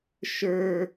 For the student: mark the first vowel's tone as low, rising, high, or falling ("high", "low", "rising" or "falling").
high